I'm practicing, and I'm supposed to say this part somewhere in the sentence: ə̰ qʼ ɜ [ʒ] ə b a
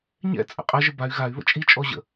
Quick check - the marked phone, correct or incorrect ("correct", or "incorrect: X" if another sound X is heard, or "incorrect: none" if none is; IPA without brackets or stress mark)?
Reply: correct